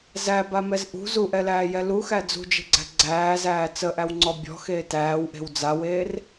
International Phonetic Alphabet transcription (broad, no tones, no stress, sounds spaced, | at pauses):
z æ b a m ɛ z ʔ ṳ z u ʔ ɛ l æː j ɛ l u x æ d͡z ṳ d͡ʒ e̤ ɡ͡ǀ æ̤ ɡ͡ǀ æː z æː t͡s ə ʔ æ w ŋ͡ǀ ɔ bʲ ɔ̤ x eː t æː w ʔ e̤ w d͡z a w eː r